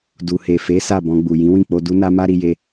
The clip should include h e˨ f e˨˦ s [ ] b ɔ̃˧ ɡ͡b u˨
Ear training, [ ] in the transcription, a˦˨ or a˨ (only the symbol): a˦˨